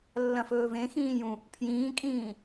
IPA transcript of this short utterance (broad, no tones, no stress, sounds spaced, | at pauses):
lː ɐ̃ f ɵː v ẽ x ĩː j ũ | pʰ j ĩː kʼ ĩː